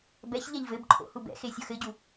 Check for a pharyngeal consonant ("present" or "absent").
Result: absent